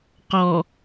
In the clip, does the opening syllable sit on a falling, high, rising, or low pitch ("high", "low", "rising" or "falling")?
low